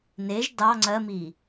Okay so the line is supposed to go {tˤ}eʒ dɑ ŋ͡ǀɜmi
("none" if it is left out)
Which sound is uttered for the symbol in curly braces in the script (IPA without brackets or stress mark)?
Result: n